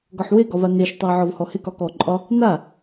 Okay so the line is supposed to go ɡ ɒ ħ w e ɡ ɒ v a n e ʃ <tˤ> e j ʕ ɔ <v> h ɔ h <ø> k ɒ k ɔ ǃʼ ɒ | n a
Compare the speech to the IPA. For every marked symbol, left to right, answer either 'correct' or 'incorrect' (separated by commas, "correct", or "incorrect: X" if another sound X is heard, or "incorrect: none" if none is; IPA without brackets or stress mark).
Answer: correct, correct, incorrect: e